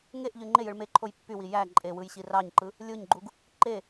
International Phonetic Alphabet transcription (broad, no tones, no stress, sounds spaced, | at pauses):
ŋ e ʔ ʎ y ŋ͡ǃ e j ɯ ɭ m e ǃʰ o j pː y w i j æ ǃʼ e w ɯ j ɕ i r ɑ ɲ ǃ ɯ | lʲ o ɲ ɡ͡ǃ u ɡ | ǃ e